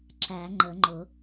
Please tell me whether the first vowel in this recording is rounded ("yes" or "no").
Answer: no